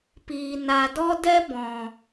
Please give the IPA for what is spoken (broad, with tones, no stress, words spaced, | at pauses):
piː˨ na˨dɔ˦dɛ˦ bɔ̃˨